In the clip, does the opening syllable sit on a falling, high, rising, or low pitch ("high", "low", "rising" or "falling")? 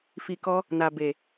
low